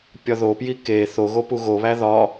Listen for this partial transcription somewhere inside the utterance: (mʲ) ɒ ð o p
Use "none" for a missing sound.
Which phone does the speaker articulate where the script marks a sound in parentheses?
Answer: pʲ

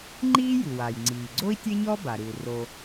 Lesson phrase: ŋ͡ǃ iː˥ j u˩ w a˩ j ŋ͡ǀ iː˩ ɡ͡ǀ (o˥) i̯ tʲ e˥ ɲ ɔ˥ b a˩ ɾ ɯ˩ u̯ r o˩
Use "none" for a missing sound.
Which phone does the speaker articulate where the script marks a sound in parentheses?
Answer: o˥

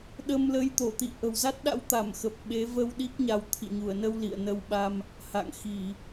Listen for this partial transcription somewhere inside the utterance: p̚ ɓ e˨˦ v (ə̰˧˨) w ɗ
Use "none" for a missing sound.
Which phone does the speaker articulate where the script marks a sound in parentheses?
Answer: ə˧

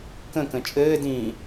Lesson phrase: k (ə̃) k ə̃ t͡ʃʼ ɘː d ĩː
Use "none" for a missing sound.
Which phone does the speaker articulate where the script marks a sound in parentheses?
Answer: ə̃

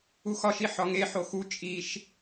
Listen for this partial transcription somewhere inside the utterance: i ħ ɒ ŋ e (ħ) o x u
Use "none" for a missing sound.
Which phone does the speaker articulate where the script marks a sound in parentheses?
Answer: ħ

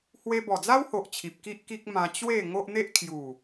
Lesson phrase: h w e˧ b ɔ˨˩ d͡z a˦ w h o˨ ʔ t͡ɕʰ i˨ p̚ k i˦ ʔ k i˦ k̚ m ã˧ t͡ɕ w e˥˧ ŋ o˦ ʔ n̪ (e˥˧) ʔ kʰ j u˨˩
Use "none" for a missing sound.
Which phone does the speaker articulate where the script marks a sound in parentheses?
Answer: e˦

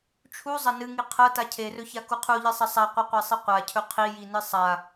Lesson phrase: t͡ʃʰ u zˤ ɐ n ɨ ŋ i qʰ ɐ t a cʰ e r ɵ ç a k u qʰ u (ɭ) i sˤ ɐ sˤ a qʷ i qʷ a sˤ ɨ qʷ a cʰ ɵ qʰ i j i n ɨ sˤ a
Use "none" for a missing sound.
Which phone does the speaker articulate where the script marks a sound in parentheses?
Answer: ʎ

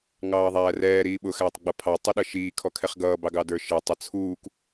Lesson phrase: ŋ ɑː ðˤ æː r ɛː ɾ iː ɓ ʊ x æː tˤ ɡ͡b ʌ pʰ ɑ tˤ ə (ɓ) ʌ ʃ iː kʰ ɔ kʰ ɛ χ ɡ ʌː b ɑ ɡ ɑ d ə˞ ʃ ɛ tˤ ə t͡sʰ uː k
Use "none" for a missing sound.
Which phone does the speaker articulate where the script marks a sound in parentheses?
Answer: ɗ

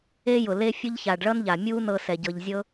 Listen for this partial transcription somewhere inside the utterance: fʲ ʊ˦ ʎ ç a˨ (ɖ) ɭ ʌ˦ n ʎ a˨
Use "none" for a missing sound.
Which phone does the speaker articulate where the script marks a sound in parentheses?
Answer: ɖ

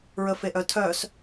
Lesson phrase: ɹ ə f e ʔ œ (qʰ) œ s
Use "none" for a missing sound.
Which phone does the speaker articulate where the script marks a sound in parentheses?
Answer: tʰ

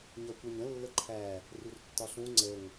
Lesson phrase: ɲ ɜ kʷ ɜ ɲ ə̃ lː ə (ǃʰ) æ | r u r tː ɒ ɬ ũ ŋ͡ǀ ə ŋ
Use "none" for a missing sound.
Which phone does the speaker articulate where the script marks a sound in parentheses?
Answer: ǃʰ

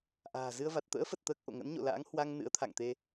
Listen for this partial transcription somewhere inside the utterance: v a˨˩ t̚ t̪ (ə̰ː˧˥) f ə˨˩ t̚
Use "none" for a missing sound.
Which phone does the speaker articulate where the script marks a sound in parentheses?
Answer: ə̰ː˧˥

